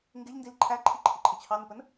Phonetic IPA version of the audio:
ŋ ɡ ɪ ʎ n d i l ǃʰ æ ǃʰ i ǃʰ ɪ ǃʰ ɪ t͡ɕʰ ɑ n ə p ə n

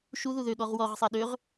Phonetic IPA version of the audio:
ʃ u ð u ð ø ɠ ɔ ʁ w ɔ ʁ sˤ ɛ ɗ ø ʁ

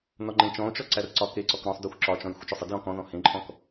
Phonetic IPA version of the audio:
n ɔ ŋ͡ǃ ẽ t͡ʃ ɔ̃ o̯ t͡ʃ ɔ ǀ æ r ǀ ɒ k e ǀ ɔ k ɾ ɔ̃ sˤ d ɔ xʷ ǁ ɒ t͡ʃ ɔ̃ j xʷ ə t͡ʃ ɔ sˤ ə d j ɔ̃ k ɔ̃ ð ɔ̃ h ẽ ǃʼ ɔ̃ k

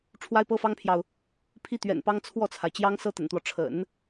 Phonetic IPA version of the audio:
ʈ͡ʂʰ w a˥ ɪ̯ p ɤ˥ f ɑ˥ ŋ pʰ j ɑ˨ ʊ̯ | pʰ i˥ t̪ ɥ ɛ̰˨˩ n p ɑ˥ ŋ t͡sʰ w ɔ˥˩ t͡sʰ a˩ ɪ̯ t͡ɕ j ɑ˥ ŋ s ɤ˥ t̪ ə̰˨˩ n t̪ w ɔ˦ ʈ͡ʂʰ ə̰˨˩˦ n

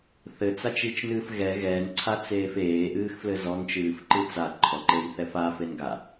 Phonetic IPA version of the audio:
θ ɘ t͡s a t͡ʃ i t͡ʃ n ɨː f ɣ ɛ ɣ ɛ n ǀʰ a t͡s eː f eː ʔ ɨː x f l ɘ z ɔ n t͡ʃ ɨː f ǃ ɨ t͡s a ǃʰ ɔ ǃ e j θ ɛ f a f e n ɡ a

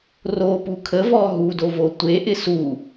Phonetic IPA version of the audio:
r o p u kʰ ə v ɔ ɦ u d o v o tʷ e ʔ ɪ s u

